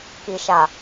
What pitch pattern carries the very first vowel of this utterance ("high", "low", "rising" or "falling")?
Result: low